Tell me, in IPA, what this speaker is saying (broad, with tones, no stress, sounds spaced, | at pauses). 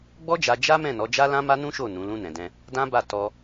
ɡ͡b ɔ˦ d͡ʒ a˧ d͡ʒ a˦ m ɛ̃˦˨ n ɔ˨˦ d͡ʒ a˦ l ã˦ m a˦ n ũ˦ ʃ o˦˨ n ũ˨˦ l ũ˦ n ɛ̃˧ d ɛ̃˦ | d ã˦ b a˦˨ t ɔ˧